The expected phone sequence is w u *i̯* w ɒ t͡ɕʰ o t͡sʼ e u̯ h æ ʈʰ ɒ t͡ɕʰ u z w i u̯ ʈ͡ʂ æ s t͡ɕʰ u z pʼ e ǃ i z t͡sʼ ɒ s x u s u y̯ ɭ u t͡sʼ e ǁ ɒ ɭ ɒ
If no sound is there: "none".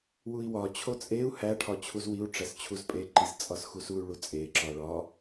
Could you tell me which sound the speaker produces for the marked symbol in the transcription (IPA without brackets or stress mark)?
i̯